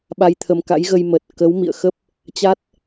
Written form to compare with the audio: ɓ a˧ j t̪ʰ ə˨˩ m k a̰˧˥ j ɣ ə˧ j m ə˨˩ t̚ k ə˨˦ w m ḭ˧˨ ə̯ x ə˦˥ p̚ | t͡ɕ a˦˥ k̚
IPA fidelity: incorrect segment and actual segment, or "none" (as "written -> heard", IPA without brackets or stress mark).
k̚ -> t̚